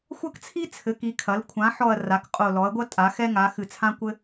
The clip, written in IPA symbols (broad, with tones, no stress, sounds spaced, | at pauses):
xʷ ɐ˥ k t͡sʰ i˥ t͡sʰ ɘ˩˥ k i˩˥ kʰ ɐ˩˥ l kʷʰ ã˩˥ ħ ɔ˧˩ ɐ̯ r a˩˥ k qʼ o˧˩ l ɔ˩˥ ɐ̯ ɡʷ ɐ˥ tʼ a˩˥ x ɛ˥ ŋ a˩˥ x ɨ˧˩ t͡sʰ ã˥ kʷ ɘ˥